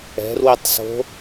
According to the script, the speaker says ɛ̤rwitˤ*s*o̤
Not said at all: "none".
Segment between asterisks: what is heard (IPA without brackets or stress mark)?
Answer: s